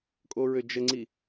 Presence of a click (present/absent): present